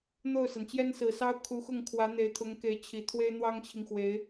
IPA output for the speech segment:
n̪ o˥˩ ʊ̯ s a˩ n t͡ɕ j ɛ˥ n s ɹ̩˨˩ s ɑ˥ ʊ̯ kʰ u˧˥ x ʊ˥˩ ŋ kʰ w ä˧˥ n̪ e˧˥ ɪ̯ t̪ʰ ʊ˧˥ ŋ k e˧˥ ɪ̯ t͡ɕʰ i˨˩ t̪ʰ w e˥ ɪ̯ n̪ w ɑ˥ ŋ t͡ɕʰ i˨ ŋ x w e˧˥ ɪ̯

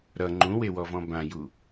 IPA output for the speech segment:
ɾ ʌ ŋ͡ǃ ũ w e w ɔ v ɔ̃ b ã j u

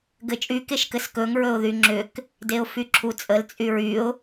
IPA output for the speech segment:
ɡ ɘ t͡ʃʼ y k e ʃ k ɘ s k ɵ ŋ ɹ ɵ ʊ̯ ð y ŋ͡ǁ ʏ k | d e ʊ̯ f y ǁʰ u t͡sʼ ə l t͡sʼ y ɹ y ʊ̯

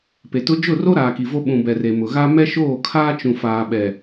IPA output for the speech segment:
p e˨ t ʊ˦ d͡ʒ ʊ˦˨ r o˦ ɾ aː˨ k i˨ v o˦ ɓ ũ˨ b ɛ˨ r e˨ m ʊ˨ ɣ a˦ m ɛ˦ ʃ oː˦˨ kʰ aː˦ t͡ʃ ũ˨ f aː˨ ɓ ɛ˨

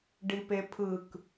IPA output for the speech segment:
ɖ i p e pʰ ɯ k

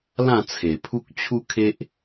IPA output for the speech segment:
l ã˥˧ t͡sʰ e˨˩ pʰ u˦ k̚ t͡ɕʰ u˦ kʰ e˦ ʔ

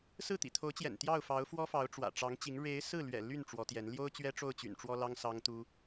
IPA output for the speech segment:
s ɹ̩˥˩ t̪ ḭ˨˩ t̪ʰ o˧˥ ʊ̯ t͡ɕ j ɛ̰˨˩ n t̪ j ɑ˥˩ ʊ̯ f ɑ˧˥ ʊ̯ f w ɔ˥ f ɑ˧˥ ʊ̯ ʈ͡ʂ w ä̰˨˩ ʈ͡ʂ ɑ˧˥ ŋ t͡ɕ i˧˥ ŋ ɻ e˧˥ ɪ̯ s ɹ̩˥˩ l ɥ ɛ̰˨˩ l y˥˩ n ʈ͡ʂ w ɔ˧˥ t̪ j ɛ˧˥ n l j o˥ ʊ̯ t͡ɕ ɥ ɛ˥ ʈ͡ʂ o˥˩ ʊ̯ t͡ɕ y̰˨˩ n ʈ͡ʂ w ɔ˥ l ɑ˥ ŋ s ɑ˥ ŋ t̪ u˥

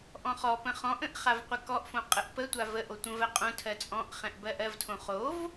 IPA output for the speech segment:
ʔ ɔ̃ χ ɔ p ə̃ χ ɔ̃ ʔ ə̃ ʔ χ a v qʷ ə k ɔ ʔ f õ qʼ ə ʔ p ə tʷ a v ə ʔ o tʷ ə̃ v ɜ qʼ õ tʰ ɜ t͡sʼ ɔ̃ ʔ χ ɛ̃ ʔ b ɜ ʔ ɜ v tʰ õ χ o v

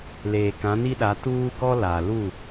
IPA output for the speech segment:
l eː˨ k ã˨˦ n i˦ ɗ a˨˦ t uː˦ ɡ ɔ˦ l a˨ l u˦˨

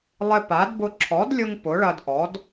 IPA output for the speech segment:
lˠ ɪ˧ p a˩˥ d b ʊ˧ ǁʰ ɔ˩˥ d lʲ ʊ˧ ŋ p ʊ˩˥ ɭ ɐ˧ d ʔ ɔ˩˥ d

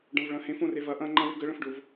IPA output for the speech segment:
ɖ ɐ̃ v ɭ ɐ̃ h ẽ f õ r e v ɐ ʔ ɐ̃ ŋ͡ǃ ɐ̃ w ɪ ɡ ə ɭ ə̃ f ɖ ʊ v

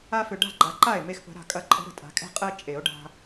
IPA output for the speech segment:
a˦ f ʏ˨ ɖ a̤˥˩ ɡ͡ǃ a˨ ǃ a˥˩ e̯ m e˦ x p ə̤˨˦ ɾ a̤˨ kʼ ɐ˨˦ ǃʼ ə̤˨˦ ɾ ə̤˨ tʼ a̤˨˩˦ kʼ ɛ̤˦ qʼ ɜ˦ t͡ʃʼ e˨˩˦ o̯ ɖ a̤˦

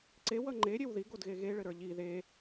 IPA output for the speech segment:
ǀ e w ʌ ŋ͡ǃ e ɾʲ e w ð i ɡ o d ɣ e ɣ e ɭ ɘ ɾ ə˞ ʎ i ð e

